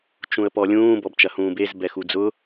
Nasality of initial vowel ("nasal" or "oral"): nasal